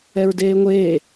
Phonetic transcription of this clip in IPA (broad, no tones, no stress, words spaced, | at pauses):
ɛɹdeːŋʷeː